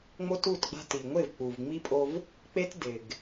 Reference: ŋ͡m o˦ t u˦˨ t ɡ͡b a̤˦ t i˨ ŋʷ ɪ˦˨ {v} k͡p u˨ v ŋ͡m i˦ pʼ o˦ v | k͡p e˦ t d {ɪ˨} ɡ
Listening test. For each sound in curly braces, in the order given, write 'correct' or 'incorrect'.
correct, correct

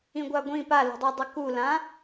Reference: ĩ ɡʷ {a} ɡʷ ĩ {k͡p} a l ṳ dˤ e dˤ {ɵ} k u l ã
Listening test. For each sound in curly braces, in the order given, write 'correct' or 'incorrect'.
correct, incorrect, correct

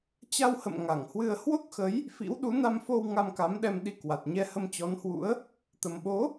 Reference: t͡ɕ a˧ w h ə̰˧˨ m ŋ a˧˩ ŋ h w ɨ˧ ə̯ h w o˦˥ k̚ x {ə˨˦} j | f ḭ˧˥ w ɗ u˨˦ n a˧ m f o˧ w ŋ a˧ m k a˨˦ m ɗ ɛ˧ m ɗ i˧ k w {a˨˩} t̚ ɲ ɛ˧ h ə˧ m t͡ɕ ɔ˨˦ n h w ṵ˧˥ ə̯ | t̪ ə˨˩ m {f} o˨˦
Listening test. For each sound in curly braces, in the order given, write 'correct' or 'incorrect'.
correct, correct, incorrect

